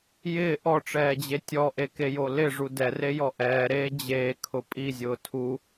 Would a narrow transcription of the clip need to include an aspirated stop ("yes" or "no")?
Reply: yes